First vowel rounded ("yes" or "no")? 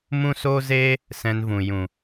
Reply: yes